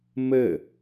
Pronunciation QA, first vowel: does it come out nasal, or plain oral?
oral